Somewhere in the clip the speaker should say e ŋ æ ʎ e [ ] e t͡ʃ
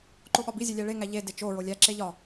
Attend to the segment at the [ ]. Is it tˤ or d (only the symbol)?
d